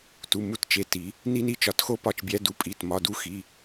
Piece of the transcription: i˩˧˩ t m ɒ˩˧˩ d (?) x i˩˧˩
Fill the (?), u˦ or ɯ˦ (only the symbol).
u˦